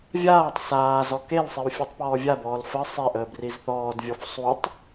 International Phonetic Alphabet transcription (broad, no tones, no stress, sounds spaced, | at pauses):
vʲ aː tˤ s aː z ɔ k e l sˤ i w fʲ u tˤ p ɔː vʲ a b ɔː l f ə sˤ e ʔ əː b r i z θ ɔː d vʲ ɔ f sˤ u tˤ